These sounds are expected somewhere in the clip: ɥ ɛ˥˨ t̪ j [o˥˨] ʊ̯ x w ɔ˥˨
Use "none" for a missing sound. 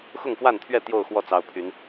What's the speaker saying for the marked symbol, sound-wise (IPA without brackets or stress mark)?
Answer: o˥˨